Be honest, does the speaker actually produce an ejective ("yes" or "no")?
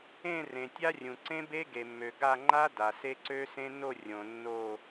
no